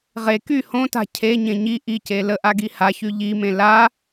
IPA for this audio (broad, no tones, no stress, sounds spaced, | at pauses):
ʁ e k y h õ t a̤ cʰ e ɲ ẽ ɲ i ʔ i c e l ə ʔ a ɡ i h a ç y ʎ i m ẽ l a